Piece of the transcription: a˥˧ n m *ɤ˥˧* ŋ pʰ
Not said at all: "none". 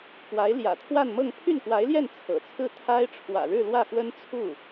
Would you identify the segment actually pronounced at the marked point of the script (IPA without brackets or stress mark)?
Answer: ɤ˥˧